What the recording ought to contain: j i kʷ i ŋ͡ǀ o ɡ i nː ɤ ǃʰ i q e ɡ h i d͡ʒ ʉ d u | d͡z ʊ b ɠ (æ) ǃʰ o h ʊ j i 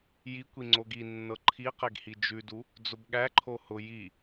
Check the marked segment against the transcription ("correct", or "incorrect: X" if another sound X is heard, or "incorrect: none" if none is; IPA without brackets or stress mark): correct